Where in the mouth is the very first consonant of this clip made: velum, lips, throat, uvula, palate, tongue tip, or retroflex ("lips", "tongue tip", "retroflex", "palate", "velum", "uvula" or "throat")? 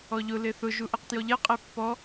palate